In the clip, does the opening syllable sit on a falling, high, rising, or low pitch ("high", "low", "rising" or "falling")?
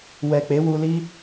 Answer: low